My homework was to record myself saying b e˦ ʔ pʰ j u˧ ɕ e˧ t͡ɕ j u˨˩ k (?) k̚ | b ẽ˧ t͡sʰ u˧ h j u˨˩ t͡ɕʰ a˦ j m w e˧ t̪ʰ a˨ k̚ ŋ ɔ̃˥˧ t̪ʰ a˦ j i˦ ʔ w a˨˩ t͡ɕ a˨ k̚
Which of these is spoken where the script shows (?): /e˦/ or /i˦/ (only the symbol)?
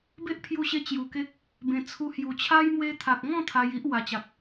e˦